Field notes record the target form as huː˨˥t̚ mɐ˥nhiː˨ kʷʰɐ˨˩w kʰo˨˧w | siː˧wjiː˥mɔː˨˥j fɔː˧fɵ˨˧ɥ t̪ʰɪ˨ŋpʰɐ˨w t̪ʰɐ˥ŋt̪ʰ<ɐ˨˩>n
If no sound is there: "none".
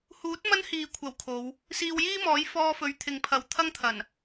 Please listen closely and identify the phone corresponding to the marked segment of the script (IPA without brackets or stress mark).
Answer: ɐ˨˩